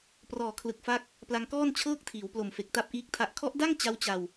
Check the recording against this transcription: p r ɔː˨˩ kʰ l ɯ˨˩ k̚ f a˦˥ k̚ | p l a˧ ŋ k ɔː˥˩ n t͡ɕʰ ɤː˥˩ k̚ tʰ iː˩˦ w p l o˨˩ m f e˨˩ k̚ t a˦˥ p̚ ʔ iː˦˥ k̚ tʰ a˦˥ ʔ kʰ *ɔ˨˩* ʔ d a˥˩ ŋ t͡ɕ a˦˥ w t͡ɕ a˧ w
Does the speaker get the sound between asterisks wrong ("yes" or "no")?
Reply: yes